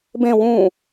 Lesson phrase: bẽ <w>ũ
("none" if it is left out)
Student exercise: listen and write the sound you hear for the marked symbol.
w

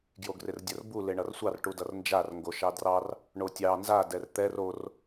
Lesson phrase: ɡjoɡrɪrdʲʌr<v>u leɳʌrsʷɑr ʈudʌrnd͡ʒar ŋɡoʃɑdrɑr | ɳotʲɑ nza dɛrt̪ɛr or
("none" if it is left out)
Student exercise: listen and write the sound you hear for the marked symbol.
b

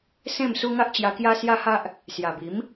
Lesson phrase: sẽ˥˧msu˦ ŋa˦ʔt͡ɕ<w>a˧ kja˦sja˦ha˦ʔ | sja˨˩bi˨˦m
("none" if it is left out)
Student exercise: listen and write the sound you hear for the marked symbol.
j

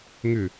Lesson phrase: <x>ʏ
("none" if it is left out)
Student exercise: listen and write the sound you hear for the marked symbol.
ŋ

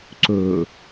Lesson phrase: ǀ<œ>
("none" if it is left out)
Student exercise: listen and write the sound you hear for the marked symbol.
ɵ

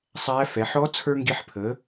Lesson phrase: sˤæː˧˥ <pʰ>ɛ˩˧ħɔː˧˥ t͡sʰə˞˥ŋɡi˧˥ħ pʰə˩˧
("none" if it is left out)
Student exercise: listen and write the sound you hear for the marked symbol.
f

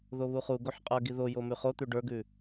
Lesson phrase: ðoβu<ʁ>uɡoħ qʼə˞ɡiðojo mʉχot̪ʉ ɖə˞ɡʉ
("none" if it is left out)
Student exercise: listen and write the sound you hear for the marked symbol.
χ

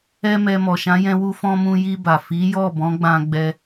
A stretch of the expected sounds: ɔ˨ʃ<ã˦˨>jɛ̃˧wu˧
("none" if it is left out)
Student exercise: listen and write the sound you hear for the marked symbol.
ã˨˦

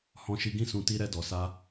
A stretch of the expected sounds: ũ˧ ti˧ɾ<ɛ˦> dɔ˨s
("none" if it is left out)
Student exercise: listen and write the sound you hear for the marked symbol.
ɛ˧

